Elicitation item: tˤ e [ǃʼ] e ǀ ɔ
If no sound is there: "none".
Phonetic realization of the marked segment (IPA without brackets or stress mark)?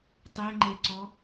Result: ŋ͡ǃ